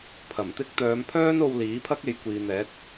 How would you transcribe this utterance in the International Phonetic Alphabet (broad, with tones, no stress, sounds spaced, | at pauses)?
pʰ ɐ˨˩ m t̪ ɪ˥ k̚ t̪ œː˨˧ m pʰ œː˥ n o˧ w l iː˨˥ pʰ ɐ˥ k̚ e˨˧ j kʷ iː˨ n̪ ɛː˨˥ t̚